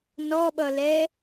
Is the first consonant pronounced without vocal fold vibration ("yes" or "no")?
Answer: no